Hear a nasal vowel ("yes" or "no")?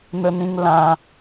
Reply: yes